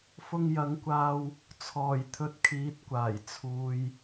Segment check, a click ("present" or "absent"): absent